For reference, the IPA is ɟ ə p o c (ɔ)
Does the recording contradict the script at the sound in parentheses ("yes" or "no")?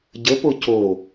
yes